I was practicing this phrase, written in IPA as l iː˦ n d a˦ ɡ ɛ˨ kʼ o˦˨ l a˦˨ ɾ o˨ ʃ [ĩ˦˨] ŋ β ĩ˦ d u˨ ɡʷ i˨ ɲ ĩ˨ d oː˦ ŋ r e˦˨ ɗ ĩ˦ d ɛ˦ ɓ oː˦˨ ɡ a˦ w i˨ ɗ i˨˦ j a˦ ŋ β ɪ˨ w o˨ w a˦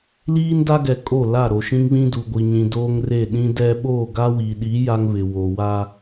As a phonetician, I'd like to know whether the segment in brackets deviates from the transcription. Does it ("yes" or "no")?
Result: yes